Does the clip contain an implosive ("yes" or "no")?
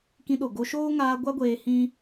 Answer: yes